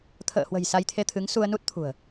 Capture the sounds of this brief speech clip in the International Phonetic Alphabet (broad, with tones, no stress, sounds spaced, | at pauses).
t̪ʰ ə̰ː˧˨ h w ə̤˨˩ j s a˧ j t̪ʰ e˧ t̪ʰ ɨ˨˦ ŋ s u˧ ə̯ n u˦˥ t̚ t̪ʰ ṳ˨˩ ə̯